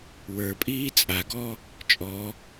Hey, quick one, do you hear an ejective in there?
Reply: yes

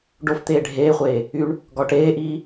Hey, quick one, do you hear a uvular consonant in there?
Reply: yes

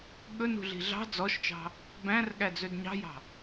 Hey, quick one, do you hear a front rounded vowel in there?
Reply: yes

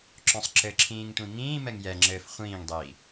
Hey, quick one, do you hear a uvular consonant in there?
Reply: yes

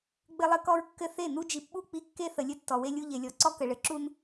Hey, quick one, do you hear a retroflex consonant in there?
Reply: yes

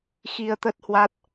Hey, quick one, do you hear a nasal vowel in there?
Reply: no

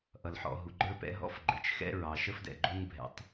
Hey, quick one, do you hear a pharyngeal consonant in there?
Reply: yes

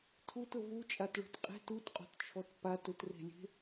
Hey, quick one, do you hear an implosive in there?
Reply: no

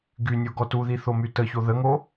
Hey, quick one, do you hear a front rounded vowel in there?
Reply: yes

